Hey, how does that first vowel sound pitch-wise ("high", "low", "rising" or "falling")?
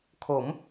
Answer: rising